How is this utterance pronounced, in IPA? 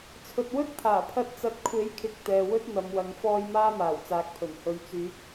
t͡sʰ ɵ˨ t̚ w ɵ˥ t̚ pʰ aː˨˩ pʰ ɐ˧ t̚ t͡s ɐ˨˥ t̚ kʷʰ e˨˥ j kʰ ɪ˨ k̚ t̪ ɛː˨ w ɵ˥ t̚ n̪ ɐ˨˧ m w ɐ˨˧ ŋ f ɔː˧ j m aː˥ m aː˨˩ w t͡s aː˨˥ k̚ pʰ ɵ˨˩ n h ɵ˨˧ ɥ t͡s yː˨˥ k̚

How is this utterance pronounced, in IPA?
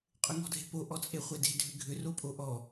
qʼ ʏ ŋ ɔ̤ dʱ e̤ p o ʔ ɔ t͡sʼ e χʷ e d e̤ dʱ ʏ ɡʱ ʏ r o pʼ o ʔ ɔ

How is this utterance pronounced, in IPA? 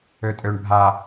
ø tʼ ø ɳ bʱ a

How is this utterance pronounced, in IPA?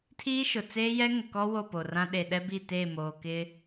tʰ iː˦ ʃ ʊ˨ t͡s eː˦ j ɛ˦ ŋ ʊ˨ k ɔ˦ w o˦˨ p o˨ r ã˦ ɗ e˨ ɗ ɛ˦ b i˦˨ t eː˦˨ m oː˨ k ɪ˦

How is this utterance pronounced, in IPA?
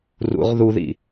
r ṵ ʁ ð u ð ḭ

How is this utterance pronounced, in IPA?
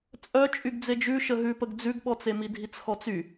t͡sʼ œ t͡ʃʼ y ɡ d͡z e d͡ʒ ʉ ʃ ə ɦ ʉ p ə ɡ d͡z ʉ ɡ ɓ ɔ t͡s e m i dʱ i t͡s x ɔ t͡s y

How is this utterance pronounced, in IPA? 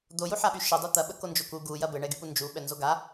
d̪ o j u ħ a ɓ y ʃ ə dˤ u t̪ ɐ ɓ ə k o n d͡ʒ o k u ɡ u j ɐ b ɘ ɳ ɛ ɡ y p u n d͡ʒ u ɓ ɛ n z o ɡ a

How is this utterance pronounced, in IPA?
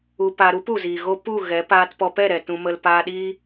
u˧ p a˧ ɾ u˦ p u˨ z iː˨ ɣ o˦ p u˦˨ ɣ ɛ˨˦ p aː˧ t p ɔ˧ p ɛ˦˨ ɾ ɛ˨ t ũ˧ m ə˧ l p aː˧ ɗ iː˦

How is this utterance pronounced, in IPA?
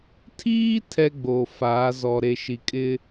tʰ iː˦ tʰ ɛ˦ ɡ͡b oː˨ f aː˨˦ z ɔ˨ ɾ e˨ ʃ i˨ kʼ ɪ˦

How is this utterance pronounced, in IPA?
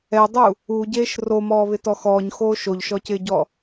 ɛ dˤ u | u ɟ eː ʃ r o m ɔː β ɪ t ɔ x ɔː ɲ x oː ʃ o ʎ ʃ ɔ c ɪː ɟ ɔ

